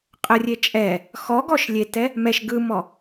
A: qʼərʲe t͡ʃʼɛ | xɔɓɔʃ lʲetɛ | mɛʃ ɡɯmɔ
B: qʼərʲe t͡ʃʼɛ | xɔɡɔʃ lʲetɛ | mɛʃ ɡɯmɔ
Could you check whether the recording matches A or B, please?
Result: B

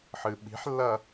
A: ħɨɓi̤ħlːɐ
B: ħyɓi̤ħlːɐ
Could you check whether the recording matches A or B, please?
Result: A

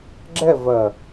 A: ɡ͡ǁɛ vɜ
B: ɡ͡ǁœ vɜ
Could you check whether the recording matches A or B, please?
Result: A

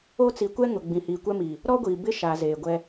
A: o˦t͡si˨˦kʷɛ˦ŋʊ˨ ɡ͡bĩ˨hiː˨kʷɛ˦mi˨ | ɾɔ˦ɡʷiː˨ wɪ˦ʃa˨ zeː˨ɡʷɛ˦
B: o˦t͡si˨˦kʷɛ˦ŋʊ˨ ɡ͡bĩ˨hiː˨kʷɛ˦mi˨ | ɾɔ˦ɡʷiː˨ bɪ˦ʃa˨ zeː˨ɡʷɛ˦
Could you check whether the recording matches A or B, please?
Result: B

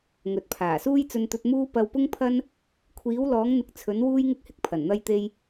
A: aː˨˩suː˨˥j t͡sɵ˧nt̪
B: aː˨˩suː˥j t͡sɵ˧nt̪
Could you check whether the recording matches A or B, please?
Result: B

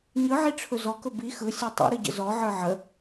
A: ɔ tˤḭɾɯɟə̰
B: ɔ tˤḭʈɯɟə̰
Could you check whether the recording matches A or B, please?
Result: A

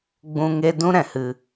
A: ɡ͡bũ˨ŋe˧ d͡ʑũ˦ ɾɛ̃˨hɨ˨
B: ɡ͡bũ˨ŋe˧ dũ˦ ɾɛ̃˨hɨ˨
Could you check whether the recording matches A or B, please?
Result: B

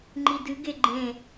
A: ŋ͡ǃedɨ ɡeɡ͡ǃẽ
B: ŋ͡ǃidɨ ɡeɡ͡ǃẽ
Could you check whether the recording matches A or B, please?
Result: B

